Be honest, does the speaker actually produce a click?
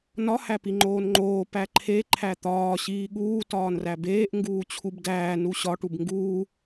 yes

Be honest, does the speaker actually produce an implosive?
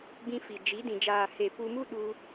yes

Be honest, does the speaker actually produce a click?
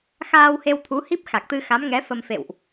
no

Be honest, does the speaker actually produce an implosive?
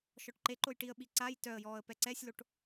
yes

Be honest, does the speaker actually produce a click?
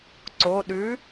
yes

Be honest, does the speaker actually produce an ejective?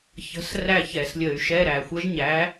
no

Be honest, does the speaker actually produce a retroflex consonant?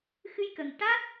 yes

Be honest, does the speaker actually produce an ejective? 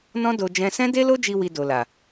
no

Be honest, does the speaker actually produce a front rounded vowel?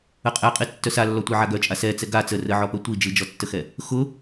yes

